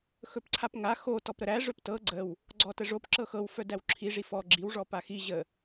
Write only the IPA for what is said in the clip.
x ɵ p ǀʰ a p ŋ a x o t ɔ p ɾ ə ɾ æ ʐ ɵ p t ɤ ɡ͡ǀ ə w | ɡ͡ǀ ɔ t ə ʐ o p ǁ ɤ x ɤ w f œ d æ w ǁʰ i ʐ i f ɔ ɡ͡ǁ i w ʐ ɔ p a x i ʑ ə

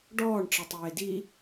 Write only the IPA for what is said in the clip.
ɖ ɔː ɳ ʈ͡ʂ ʌ tˤ eː d i

